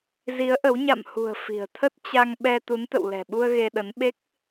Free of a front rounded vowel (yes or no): yes